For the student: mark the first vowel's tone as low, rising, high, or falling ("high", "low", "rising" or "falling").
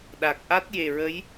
low